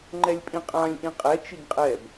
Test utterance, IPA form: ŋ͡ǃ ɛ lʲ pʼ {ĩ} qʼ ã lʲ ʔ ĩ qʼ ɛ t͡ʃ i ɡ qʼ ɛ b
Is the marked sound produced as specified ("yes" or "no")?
yes